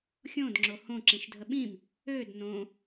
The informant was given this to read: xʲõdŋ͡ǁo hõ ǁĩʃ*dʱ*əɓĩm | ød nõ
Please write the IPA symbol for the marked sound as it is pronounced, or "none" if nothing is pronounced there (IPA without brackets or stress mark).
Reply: dʱ